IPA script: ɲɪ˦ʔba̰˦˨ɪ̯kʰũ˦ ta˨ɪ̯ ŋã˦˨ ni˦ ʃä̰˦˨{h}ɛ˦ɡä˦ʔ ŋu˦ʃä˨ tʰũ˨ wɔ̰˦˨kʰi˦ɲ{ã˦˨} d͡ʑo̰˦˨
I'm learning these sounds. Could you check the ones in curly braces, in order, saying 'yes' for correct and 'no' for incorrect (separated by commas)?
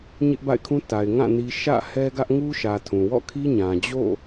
yes, no